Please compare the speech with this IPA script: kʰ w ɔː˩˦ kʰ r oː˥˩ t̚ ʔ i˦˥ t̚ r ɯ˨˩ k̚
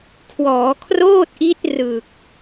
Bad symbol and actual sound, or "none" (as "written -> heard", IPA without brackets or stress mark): none